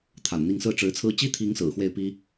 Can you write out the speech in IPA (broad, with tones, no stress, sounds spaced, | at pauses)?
t̪ʰ a̰˨˩ n n̪ i˥˧ ŋ s ɹ̩˥˩ ʈ͡ʂ ɻ̩˧˥ t͡sʰ ɹ̩˥ t͡ɕ i˥ t̪ʰ i˧˥ ŋ s ɹ̩˨˩ x w e˥˩ ɪ̯ p i˥